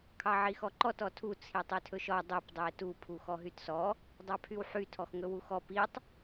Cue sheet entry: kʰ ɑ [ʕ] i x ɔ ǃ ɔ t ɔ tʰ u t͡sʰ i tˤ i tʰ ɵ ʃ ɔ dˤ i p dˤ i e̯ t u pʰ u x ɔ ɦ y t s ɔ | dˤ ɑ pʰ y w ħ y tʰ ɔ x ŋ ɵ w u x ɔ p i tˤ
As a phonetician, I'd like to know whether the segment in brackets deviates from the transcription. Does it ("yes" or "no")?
no